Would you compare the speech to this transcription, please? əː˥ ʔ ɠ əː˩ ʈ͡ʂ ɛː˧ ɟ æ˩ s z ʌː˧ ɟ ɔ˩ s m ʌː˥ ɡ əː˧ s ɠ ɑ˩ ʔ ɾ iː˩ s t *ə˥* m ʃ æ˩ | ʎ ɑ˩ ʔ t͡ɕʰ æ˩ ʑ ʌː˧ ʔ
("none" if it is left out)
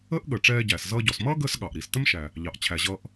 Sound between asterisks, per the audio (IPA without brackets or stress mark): ə˥